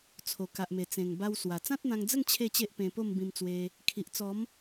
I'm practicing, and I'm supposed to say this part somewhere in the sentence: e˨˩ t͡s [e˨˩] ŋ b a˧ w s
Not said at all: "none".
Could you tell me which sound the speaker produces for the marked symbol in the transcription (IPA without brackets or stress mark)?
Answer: ẽ˨˩